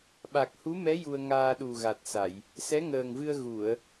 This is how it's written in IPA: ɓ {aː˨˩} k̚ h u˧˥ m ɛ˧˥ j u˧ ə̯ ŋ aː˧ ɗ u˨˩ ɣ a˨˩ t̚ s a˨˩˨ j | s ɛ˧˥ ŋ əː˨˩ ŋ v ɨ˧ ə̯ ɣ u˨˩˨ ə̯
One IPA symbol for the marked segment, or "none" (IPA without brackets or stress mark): a˨˩